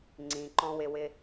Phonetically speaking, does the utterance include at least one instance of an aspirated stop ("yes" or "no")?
no